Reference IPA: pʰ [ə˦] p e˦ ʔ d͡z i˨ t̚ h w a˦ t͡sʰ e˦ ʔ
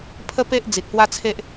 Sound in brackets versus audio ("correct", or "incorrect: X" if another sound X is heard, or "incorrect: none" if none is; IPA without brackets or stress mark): correct